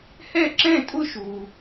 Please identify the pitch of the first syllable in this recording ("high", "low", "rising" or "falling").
falling